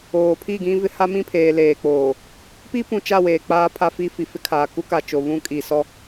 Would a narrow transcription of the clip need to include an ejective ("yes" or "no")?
yes